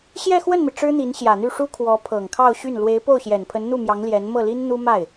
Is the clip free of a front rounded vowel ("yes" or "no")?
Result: no